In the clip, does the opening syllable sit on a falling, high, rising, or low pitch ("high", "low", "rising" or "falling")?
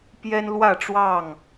high